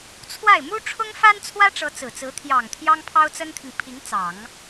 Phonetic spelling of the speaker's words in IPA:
t͡sʰwa˥˩ɪ̯ mu˥ʈ͡ʂʰʊ˥ŋ fa˥nt͡sʰwä˥ʈ͡ʂɤ˧˥ t͡sɹ̩˨˩t͡sɹ̩˧˥ t̪ʰjɑ˨˩ŋ t̪ʰjɑ˥ŋpʰɑ˥ʊ̯t͡sə˥nt̪ʰi˨ŋ pʰi˧˥ŋt͡sɑ˨˩˦ŋ

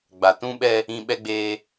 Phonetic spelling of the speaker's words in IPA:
ɡ͡ba˨ tũ˦ɓɛ˦ | ĩ˦ ɓɛ˦ɡ͡beː˦

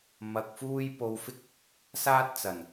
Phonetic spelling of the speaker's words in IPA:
mɐ˧k̚fuː˥j po˧wfɪ˥k̚ | saː˥t̚t͡sɐ˨˩n

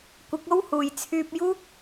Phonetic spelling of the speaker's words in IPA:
kʷɪ˨˥k̚o˥w huː˨jt͡sʰyː˧p̚ juː˥k̚

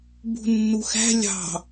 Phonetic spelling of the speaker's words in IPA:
bṳnːuxæ̤ lʲɑ̤

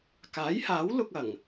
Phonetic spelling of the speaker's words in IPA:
kaː˨˥jhaː˨˥wlʊ˧k̚ ɐ˨˩ŋ

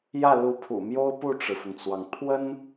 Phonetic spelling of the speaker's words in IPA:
jä˥˩lu˧˥pʰṵ˨˩mjo˥ʊ̯ pu˥˩ʈ͡ʂɻ̩˩fʊ˩ŋt͡swɑ˩ŋ t̪ʰwə˥n

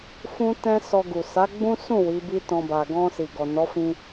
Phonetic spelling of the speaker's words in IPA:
fũ˦ tɛ̃˦sɔ˧ɡu˨ sa˨˦ɡ͡bũ˦sũ˦˨ wi˨˦bi˦tɔ̃˧ba˨ ɡɔ̃˧ si˨ɡɔ˨ nɔ˨˦fĩ˧

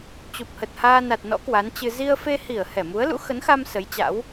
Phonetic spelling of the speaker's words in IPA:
t͡ɕu˨˩p̚hə˨˩t̚ haː˧ na˨˩t̚nɔ̰˧˥ kwa˨˦nt͡ɕɨ˧ zi˧ə̯fe˧hi˧˩ə̯ hɛ˧˩mu˨˦ə̯lṵ˧˥ xə˨˦nxa˧m sə˨˦jt͡ɕa̰˧˥w

